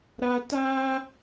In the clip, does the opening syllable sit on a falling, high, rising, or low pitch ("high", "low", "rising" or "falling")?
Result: low